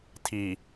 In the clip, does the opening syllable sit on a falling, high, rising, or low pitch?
low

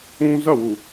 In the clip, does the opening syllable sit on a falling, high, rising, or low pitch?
high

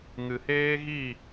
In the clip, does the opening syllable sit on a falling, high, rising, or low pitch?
low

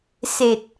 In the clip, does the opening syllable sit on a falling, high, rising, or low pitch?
low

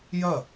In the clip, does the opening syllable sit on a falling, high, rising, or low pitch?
falling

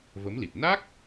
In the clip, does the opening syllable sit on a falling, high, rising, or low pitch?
rising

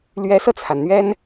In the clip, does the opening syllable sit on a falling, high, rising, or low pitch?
rising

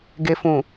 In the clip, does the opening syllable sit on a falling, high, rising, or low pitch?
low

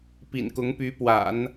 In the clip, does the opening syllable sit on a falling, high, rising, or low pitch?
low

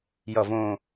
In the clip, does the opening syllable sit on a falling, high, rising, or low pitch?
low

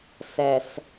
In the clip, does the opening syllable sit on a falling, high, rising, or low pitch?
low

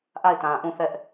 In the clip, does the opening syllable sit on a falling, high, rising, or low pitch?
falling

